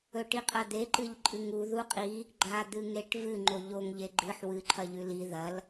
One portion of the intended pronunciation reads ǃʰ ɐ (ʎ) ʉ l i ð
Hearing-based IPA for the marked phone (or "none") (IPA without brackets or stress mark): ʎ